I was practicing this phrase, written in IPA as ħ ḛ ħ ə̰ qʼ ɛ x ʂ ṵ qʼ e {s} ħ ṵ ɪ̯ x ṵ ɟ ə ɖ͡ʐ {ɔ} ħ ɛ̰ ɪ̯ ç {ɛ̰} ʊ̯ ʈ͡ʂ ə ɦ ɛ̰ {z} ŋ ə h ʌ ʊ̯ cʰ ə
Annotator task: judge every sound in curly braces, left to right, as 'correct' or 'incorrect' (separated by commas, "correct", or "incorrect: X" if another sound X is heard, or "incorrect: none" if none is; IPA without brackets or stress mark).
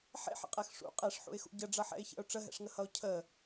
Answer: incorrect: ʂ, incorrect: ʌ, correct, incorrect: ʂ